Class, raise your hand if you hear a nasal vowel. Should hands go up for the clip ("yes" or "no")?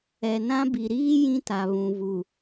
yes